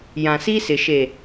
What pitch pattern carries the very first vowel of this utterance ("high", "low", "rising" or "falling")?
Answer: low